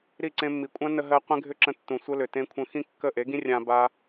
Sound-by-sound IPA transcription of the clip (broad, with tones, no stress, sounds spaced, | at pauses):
ɾ i˦˨ ǀ ẽ˧ mː i˨ kʷʼ ã˦ n ə˧ ɦ ɜ˧ qʷ ẽ˦ ɡʱ ʏ˦ ǁ ə̃˧ tː ũ˨ sʷ ə˦ l ʏ˨ t ẽ˧ kʷʰ ə̃˧ x ĩ˦ kː ə˦˨ ʔ e˨˦ ɡ ĩ˦ rʲ ã˧ b a˦